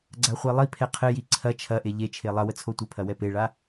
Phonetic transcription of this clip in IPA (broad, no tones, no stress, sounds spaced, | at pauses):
ɡ͡ǀ a χʷ e lˠ i pʰ ɛ qʰ ɘ j i ǀʰ ɐ t͡ʃʰ ɐ ʔ e ʎ e t͡ʃʰ e lˠ ɐ w ə t͡sʰ o tʷ ɘ pʰ ɐ w ɛ p e ɭ a